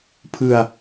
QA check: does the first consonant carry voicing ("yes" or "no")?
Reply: no